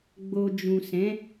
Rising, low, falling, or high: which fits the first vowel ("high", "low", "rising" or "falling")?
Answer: low